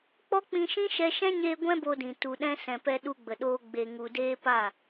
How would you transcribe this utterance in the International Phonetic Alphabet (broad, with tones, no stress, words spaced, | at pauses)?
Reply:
k͡pɔ˦k͡pĩ˧ʃĩ˦ ʃɛ˧ʃɛ̃˦ɲeː˧ ɡʷɛ̃˦bo˧dĩ˨ tu˨ɗɛ̃˧ sɛ̃˨pɛ˧ ɗu˧ɡ͡bə˨ɗoː˧ ɡ͡be˨ŋu˨deː˧ pa˦˨